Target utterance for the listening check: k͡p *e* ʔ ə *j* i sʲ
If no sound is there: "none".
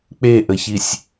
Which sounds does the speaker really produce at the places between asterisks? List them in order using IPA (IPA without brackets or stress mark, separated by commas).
e, ç